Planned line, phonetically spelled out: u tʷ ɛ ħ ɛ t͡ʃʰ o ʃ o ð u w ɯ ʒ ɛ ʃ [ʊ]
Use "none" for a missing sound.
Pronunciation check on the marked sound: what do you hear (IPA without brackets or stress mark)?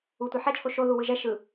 ɯ